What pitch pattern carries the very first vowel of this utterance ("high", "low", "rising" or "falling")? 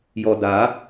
low